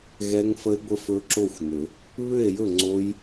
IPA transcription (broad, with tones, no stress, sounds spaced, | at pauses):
ɣ ɛ˦˥ ŋ f ə˦˥ e̯ ɡʷ ə˦˥ f ɵ˦˥ ǁ o˥˨ xʷ n ʏ˨˩˦ | β ʏ˥˨ e̯ j ɵ˥˨ ŋ͡ǀ o˦˥ j